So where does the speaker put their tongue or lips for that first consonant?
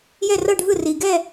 palate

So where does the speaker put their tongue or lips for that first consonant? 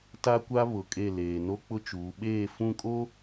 tongue tip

